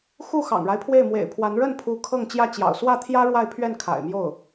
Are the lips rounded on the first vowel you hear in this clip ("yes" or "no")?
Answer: yes